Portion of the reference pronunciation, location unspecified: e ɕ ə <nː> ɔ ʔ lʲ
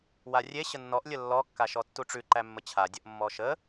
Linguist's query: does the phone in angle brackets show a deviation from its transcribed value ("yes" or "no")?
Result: no